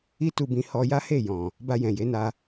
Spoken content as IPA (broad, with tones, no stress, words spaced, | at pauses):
i˦tu˧bĩ˧ hɔ˧ja˦he˦˨ jɔ̃˨ | ba˧jɛ̃˨je˨˦na˧